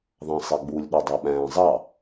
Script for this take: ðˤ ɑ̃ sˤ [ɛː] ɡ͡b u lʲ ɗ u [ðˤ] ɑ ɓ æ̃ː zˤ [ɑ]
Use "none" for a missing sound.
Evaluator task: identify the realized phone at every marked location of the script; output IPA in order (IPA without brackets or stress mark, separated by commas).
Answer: ɛ, dˤ, ɑ